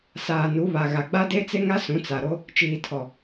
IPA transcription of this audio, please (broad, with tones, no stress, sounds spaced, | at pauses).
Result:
s aː˨ n u˨˦ β a˨ ɣ a˨ ɡ͡b a˦ d e˦ t͡s e˦ ŋ a˦ s ũ˨˦ t͡s a˨ ɾ o˦ | t͡ʃ iː˨ tʰ ɔ˨